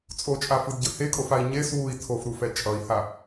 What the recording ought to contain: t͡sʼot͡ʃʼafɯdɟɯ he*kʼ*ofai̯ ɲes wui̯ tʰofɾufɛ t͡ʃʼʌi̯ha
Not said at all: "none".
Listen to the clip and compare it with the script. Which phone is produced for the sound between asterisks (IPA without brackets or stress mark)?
kʼ